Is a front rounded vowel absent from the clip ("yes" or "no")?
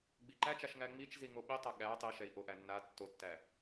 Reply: yes